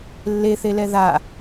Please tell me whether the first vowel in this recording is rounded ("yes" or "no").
no